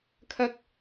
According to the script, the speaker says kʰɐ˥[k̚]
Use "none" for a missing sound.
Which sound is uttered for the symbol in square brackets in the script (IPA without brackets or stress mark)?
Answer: k̚